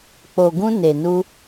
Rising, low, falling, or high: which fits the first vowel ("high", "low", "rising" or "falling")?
low